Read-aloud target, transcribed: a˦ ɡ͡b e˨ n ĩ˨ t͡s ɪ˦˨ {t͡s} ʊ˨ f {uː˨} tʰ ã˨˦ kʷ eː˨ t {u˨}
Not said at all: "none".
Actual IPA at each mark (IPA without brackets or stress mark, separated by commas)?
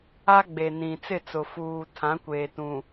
t͡s, uː˨, ũ˨